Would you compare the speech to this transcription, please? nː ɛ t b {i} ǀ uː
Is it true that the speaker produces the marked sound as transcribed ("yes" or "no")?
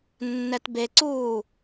no